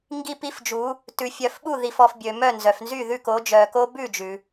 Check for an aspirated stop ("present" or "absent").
absent